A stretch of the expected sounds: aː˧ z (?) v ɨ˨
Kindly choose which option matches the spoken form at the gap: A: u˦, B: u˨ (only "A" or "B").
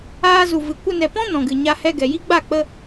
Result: B